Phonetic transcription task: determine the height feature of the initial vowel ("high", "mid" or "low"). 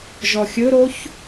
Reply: mid